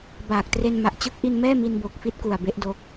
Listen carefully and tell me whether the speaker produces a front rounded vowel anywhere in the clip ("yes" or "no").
no